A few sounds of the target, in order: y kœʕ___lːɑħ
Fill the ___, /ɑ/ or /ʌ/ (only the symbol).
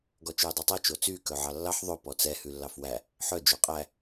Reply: ɑ